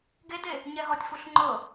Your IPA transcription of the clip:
ɡ e d e | ɲ ɛ ɦ ɔ tʲ f u ɬ ŋ͡ǃ ɤ

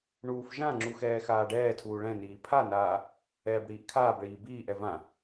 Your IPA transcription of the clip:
ɳ uː f ʒ ã ŋ͡ǁ u x ɛː x aː ɖ ɛː tʰ uː ɭ ɛ̃ n iː pʰ a n aː | ɛː b ɽ iː ʔ kʰ aː b ɭ iː b iː ʔ ɛ v ã

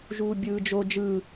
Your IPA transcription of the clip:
ʒ uː bʲ ɯː d͡ʒ o d͡ʒ ɯ

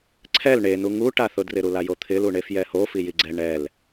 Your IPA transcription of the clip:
ǀʰ ɛ l ɳ e n u ŋ u ʈ a θ ʊ d r ɪ ɾ u l a j o t̪ʰ ɪ l u ɳ e f j ɛ h o f i j i ɡ͡ǀ ɛ ɳ ɛ l

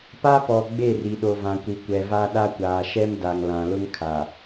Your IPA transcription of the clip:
p a˦ p ɔ˨ ɡ͡b e˦˨ r i˨ ɗ o˨ v ã˨ kʷ i˨ kʷ ɛ˨ v a˦ ɗ a˦ kʷ aː˨ ʃ ɛ˦ m d a˨ ŋ l ã˨ l ʊ˦ ŋ kʰ a˨

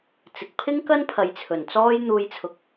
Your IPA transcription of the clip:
t͡s ɪ˨ k̚ pʰ ɪ˥ ŋ k ɐ˥ n pʰ ɐ˨˧ j t͡sʰ ɵ˨˩ n t͡s ɔː˥ j n̪ uː˧ j t͡sʰ ʊ˨˥ k̚

